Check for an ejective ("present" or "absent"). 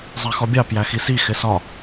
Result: absent